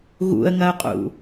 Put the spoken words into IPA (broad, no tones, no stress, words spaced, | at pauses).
ɣṵə̯ŋɐʊ̯qʼṵ